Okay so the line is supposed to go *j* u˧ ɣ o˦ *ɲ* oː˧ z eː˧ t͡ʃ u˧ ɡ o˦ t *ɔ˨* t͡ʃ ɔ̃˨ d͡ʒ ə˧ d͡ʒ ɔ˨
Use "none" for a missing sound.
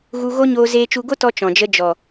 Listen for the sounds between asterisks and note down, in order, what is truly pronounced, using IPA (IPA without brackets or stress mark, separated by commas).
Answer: ɣ, ɲ, ɔ˧